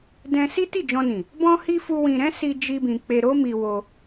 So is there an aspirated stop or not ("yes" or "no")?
no